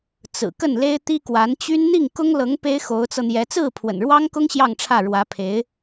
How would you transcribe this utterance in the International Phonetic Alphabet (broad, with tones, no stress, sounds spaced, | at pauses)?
t͡s ɹ̩˨˩ k ə˥˩ n l e˥ ɪ̯ t̪ i˥ k w a˧˥ n t͡ɕ y˥ n n̪ i˥˩ ŋ k ʊ˥ ŋ l ɤ˧˥ ŋ p e˥ ɪ̯ x o˧˥ ʊ̯ t͡s ɤ˧ n̪ j ɛ˧˥ t͡s ɹ̩˥˩ pʰ w ə̰˨˩ n ɻ w ɑ˥ ŋ k ʊ˥ ŋ ɕ j ɑ˥˧ ŋ ʈ͡ʂʰ ä˥˩ ɻ w ä˧˥ pʰ e˧˥ ɪ̯